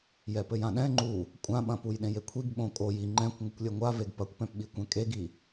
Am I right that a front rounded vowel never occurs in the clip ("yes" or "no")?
yes